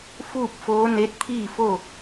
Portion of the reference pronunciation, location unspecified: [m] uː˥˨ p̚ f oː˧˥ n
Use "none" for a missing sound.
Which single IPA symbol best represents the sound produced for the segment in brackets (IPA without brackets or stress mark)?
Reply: f